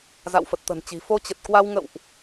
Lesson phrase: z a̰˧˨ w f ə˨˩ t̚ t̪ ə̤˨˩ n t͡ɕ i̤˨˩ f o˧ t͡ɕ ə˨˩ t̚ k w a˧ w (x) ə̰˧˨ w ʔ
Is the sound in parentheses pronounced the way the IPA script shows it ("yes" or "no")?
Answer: no